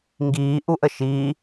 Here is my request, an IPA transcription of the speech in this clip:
ŋ ɡ iː ʔ u ʔ ə ʃ i

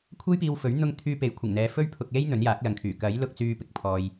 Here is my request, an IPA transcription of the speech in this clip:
kʷʰ e˥ j p iː˧ w f ɵ˨˥ ɥ n̪ ʊ˥ ŋ t̪ʰ yː˧ p e˨˥ j kʷʰ ɪ˨˩ ŋ n̪ ɛː˨˧ f ɵ˥ ɥ pʰ ʊ˧ k̚ l e˥ j n̪ ɵ˨˥ n j aː˨˥ k̚ l ɐ˨ ŋ kʰ yː˨˩ k ɐ˨˥ j l ʊ˧ k̚ t͡s yː˥ p ɪ˧ k̚ pʰ ɔː˧ j

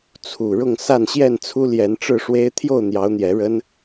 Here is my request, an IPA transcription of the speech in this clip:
t͡sʰ u˨˩ ɻ ʊ˥˨ ŋ s a˥˨ n ɕ j ɛ˥˨ n t͡sʰ u˦ l j ɛ˨˦ n ʈ͡ʂ ɻ̩˥˨ ʂ w e˦ ɪ̯ t̪ʰ j o˥˨ ʊ̯ n̪ j ɑ˨˦ ʊ̯ n̪ j ɛ˨˦ ɻ ə˦ n

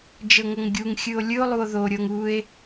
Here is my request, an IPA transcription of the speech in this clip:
d͡ʒ ɤ ŋ ɤ ŋ ɡʲ u ŋ xʲ ɯ o̯ lʲ ɯ o̯ lˠ u o̯ ð o ɾʲ ɤ ŋ u e̯

